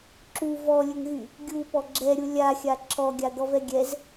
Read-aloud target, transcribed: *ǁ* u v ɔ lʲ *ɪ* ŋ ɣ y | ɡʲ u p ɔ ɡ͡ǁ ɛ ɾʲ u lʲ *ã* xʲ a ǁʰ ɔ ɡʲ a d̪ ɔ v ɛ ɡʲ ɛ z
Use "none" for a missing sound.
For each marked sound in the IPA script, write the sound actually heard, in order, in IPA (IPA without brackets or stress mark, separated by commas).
ǁ, ə, a